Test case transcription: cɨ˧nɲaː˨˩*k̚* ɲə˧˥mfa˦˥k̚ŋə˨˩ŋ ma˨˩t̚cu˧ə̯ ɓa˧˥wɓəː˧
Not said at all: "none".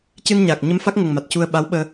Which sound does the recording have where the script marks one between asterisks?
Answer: k̚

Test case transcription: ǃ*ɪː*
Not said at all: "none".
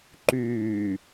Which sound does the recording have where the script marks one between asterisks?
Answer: yː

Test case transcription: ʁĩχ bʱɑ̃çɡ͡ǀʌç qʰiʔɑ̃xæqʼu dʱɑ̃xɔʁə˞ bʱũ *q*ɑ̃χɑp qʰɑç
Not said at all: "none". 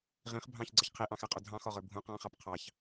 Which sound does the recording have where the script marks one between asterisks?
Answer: q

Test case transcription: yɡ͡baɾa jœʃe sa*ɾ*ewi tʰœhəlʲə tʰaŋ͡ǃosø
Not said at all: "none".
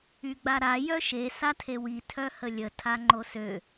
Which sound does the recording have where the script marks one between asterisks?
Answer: tʰ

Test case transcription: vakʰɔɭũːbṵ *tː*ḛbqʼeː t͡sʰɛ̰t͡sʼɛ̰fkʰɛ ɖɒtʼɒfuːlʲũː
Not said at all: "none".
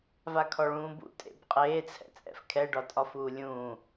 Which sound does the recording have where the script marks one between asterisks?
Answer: tʼ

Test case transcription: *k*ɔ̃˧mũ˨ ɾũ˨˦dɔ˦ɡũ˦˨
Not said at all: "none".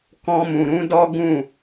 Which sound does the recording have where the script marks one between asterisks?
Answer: k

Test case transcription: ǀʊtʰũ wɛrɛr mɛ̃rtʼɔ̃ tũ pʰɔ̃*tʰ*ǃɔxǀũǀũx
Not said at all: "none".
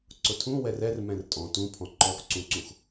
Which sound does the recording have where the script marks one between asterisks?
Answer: none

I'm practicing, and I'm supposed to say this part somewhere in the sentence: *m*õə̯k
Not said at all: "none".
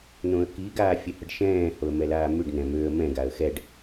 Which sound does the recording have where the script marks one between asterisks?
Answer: n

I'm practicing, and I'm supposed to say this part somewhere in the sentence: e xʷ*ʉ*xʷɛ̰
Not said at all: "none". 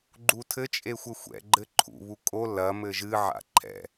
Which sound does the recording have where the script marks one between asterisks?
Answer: ɘ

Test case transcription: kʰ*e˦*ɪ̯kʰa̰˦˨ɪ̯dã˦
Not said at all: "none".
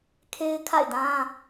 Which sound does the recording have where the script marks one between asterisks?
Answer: e˦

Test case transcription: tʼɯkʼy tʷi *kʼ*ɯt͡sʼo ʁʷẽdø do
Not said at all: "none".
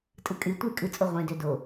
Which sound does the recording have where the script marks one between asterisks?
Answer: kʼ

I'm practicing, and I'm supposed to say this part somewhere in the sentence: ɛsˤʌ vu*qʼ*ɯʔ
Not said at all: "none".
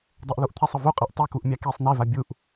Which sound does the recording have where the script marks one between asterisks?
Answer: qʼ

